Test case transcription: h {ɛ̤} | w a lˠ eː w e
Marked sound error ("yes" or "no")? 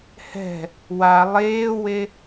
no